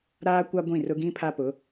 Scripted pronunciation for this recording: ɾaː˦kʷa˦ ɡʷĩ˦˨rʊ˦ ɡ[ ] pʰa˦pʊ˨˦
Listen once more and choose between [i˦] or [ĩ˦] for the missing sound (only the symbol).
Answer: ĩ˦